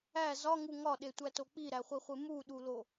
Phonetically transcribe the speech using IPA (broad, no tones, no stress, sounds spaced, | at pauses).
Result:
æ z ɒ ŋ u ŋ ɒ ɗ e tʷ æ t o k͡p i ɾ æ χʷ i χʷ e m u ɗ u l o